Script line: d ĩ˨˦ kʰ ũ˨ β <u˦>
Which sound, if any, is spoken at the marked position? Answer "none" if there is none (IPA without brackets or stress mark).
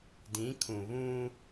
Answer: ũ˦